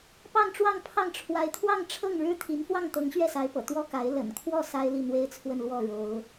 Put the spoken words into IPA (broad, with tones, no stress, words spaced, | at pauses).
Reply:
pɑ˥˧ŋʈ͡ʂwɑ˥˧ŋpʰɑ˥˩ŋ ʈ͡ʂʰwa˧˥ɪ̯t̪ʰwɑ˥˧ŋʈ͡ʂʰɤ˥˩ŋ ɻɻ̩˥t̪ʰi˧˥n fwɑ˥˩ŋt̪ɤ˧˥ŋ ɕɥɛ˥˩sa˧˥ɪ̯pɤ̰˨˩ t̪wɔ˥ka˧˥ɪ̯ lə̰˨˩nkʰwɔ˥˩ sa˥ɪ̯li˥˩ n̪we˥ɪ̯t͡sʰwə˥˧nlwɔ˥˩ ɻo˧˥ʊ̯